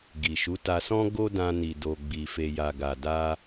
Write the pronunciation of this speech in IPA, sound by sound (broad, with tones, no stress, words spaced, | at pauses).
ɡi˨ʃu˨˦ta˧sɔ̃˦ ɡo˦dã˧ ni˨do˨ ɡ͡bi˨fe˨ja˨ ɡa˨da˧